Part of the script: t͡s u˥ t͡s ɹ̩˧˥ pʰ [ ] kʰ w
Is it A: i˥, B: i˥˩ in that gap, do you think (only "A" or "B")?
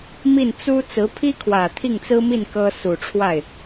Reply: A